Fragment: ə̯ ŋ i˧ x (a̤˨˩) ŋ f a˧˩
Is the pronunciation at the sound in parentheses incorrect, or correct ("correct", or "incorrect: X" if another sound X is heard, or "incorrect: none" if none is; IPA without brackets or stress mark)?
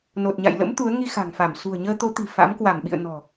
correct